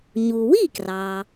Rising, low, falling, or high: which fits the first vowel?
low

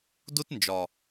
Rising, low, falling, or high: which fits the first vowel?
high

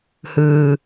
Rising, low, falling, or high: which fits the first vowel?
low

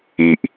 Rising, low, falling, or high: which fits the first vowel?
low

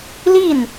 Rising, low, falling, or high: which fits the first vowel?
falling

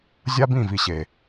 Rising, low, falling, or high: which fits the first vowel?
high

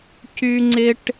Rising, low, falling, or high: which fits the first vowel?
high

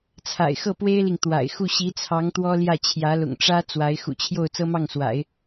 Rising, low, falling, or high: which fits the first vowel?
low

